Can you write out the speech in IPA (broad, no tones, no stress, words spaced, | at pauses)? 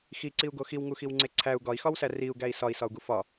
xiǀiu̯ɡo xiwŋuxiwŋ͡ǀe ǀʰæu̯ ɡɒi̯xɒwsæ riu̯ɡæi̯ sɒi̯sɒu̯ɡu fɒ